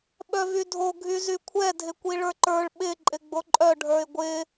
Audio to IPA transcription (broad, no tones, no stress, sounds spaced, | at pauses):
ɓ œ v y dʱ o ɡʱ y z y kʷʰ ɛ dʱ ɪ kʷ i ɭ ə˞ ǃ ə˞ ɭ ɓ ɪ ǃʼ ɪ ɡ͡b o ǃʼ œ ɖʱ ə˞ ɪ̯ ɡʷ ɪ